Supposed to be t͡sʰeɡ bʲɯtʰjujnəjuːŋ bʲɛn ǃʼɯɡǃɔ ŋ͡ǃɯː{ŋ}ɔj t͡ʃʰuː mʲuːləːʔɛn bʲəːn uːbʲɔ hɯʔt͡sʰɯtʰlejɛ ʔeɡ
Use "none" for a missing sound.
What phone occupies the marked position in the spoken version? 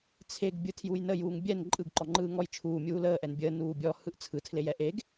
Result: ŋ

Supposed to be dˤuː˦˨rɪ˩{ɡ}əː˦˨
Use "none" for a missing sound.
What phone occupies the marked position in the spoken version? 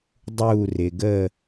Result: ɡ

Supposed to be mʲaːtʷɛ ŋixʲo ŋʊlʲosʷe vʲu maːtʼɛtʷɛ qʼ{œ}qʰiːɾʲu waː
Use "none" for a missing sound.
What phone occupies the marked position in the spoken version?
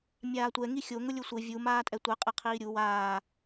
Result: ɛ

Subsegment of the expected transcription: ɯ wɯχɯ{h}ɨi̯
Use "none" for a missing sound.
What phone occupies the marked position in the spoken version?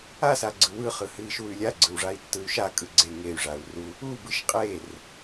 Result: h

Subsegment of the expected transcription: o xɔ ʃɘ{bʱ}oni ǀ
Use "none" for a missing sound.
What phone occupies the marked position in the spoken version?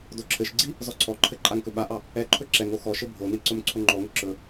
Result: bʱ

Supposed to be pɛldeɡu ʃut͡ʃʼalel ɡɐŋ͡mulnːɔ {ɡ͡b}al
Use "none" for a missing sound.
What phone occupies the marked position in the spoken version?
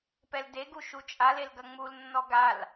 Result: ɡ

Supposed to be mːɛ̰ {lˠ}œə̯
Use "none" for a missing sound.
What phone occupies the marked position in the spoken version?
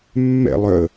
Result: lˠ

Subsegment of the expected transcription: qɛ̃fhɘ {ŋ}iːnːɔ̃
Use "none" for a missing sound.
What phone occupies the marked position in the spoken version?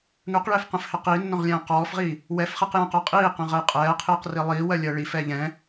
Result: q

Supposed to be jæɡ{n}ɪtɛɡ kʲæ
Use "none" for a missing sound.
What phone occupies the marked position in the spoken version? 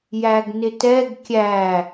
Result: n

